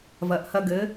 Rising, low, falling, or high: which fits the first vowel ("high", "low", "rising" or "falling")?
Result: rising